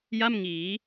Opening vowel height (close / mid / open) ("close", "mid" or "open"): open